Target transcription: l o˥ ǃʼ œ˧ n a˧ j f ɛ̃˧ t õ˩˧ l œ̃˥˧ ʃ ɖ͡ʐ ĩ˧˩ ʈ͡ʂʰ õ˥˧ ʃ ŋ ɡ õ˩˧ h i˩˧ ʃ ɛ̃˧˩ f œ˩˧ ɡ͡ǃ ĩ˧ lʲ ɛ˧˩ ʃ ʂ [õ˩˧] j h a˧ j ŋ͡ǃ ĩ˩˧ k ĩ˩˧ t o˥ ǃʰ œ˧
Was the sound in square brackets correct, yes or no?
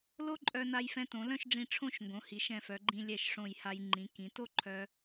no